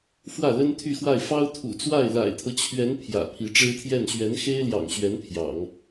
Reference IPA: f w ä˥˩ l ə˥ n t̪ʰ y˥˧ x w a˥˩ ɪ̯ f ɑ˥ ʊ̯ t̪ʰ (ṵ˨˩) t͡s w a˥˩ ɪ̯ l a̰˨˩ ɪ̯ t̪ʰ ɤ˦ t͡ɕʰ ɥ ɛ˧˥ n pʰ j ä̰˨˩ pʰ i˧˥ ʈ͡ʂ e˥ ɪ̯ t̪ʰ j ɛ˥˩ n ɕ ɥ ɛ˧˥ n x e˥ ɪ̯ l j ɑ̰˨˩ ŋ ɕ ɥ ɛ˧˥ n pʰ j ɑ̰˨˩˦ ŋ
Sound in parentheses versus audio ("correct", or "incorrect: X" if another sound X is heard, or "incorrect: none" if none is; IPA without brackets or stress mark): correct